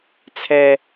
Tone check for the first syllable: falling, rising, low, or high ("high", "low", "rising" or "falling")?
low